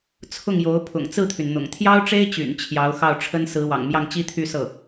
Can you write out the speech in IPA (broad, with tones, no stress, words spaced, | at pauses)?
t͡sʰʊ˥˩ŋjo˧˥ʊ̯ pʰʊ̰˨˩ŋt͡sɹ̩˥˩t̪ʰy˩nn̪ʊ̰˨˩ŋ t̪ʰjɑ˥ʊ̯ʈ͡ʂe˥ɪ̯t͡ɕy̰˨˩n t͡ɕʰjɑ˧˥ʊ̯ xɑ˥˩ʊ̯ʈ͡ʂʰə˥n sɹ̩˧˥wɑ̰˨˩ŋmjɑ˥˩ŋ t͡ɕi˥t̪ʰy˥˧sɤ˥˩